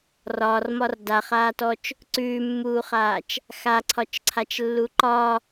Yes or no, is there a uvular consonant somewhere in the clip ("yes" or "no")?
yes